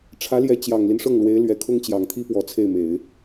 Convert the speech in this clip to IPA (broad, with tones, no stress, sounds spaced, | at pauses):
ʈ͡ʂʰ ä˧˥ l j ɛ˧˥ t͡ɕ j ɑ˨˩ ŋ l i˦ n ʂ ɤ˥˩ ŋ l w e˧˥ ɪ̯ l ɥ ɛ˨˩ kʰ ʊ˥ ŋ t͡ɕ j ɑ˨˩ ŋ t̪ʰ i˥ p w ɔ˧˥ t͡sʰ e˥˩ ɪ̯ m e˨˩˦ ɪ̯